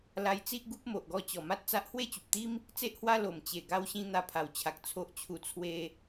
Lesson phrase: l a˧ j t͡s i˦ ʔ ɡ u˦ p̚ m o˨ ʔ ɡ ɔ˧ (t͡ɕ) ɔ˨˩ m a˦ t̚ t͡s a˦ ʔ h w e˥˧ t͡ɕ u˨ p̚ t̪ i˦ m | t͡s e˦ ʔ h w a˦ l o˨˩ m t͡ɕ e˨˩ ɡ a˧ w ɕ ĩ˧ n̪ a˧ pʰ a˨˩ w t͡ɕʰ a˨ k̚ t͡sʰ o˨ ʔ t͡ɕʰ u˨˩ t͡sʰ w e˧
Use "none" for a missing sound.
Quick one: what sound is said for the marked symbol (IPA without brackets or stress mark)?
t͡ɕ